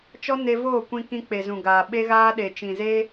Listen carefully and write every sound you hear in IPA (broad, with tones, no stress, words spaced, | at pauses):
t͡ʃɔ˦ne˧voː˦˨kʷĩ˧ kĩ˧k͡pe˨zũ˨ɡaː˨ ɓe˧ɣaː˧ ɗe˨t͡ʃĩ˨ze˧